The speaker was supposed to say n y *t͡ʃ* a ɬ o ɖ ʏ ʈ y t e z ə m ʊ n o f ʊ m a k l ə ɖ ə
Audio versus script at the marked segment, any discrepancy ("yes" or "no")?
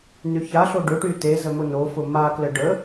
yes